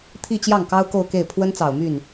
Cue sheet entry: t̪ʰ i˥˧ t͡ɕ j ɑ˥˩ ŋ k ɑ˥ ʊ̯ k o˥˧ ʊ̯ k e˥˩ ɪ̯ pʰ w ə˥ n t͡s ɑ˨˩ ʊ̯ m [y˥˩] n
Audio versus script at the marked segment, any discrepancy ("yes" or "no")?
no